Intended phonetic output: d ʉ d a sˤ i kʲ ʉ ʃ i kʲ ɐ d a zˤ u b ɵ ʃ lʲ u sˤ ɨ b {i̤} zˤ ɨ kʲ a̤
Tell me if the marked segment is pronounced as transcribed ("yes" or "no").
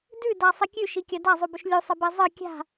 no